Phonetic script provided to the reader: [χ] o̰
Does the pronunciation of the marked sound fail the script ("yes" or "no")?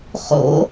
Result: no